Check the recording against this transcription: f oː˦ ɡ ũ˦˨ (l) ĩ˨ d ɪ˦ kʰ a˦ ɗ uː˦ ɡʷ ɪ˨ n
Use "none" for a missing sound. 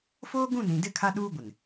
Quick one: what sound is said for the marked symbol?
n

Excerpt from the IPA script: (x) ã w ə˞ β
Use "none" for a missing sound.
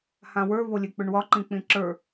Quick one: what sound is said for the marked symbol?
h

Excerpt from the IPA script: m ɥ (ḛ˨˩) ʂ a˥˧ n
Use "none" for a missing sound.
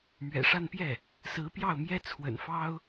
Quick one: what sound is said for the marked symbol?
ɛ̰˨˩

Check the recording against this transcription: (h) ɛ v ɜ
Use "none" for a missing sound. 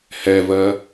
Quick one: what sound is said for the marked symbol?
h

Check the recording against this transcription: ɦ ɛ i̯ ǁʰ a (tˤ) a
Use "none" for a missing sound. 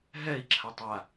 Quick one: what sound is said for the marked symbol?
tˤ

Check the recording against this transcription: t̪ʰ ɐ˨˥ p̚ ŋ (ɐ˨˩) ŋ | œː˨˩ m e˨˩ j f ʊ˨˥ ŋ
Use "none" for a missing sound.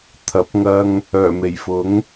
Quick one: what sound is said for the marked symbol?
ɐ˧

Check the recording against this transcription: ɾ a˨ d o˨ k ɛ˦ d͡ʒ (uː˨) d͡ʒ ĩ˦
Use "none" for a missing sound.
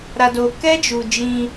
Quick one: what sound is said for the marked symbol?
u˨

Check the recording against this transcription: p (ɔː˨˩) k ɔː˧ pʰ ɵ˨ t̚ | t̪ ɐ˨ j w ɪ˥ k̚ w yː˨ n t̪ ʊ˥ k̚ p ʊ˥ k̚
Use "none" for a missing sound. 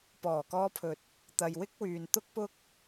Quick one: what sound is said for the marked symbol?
ɔː˨˩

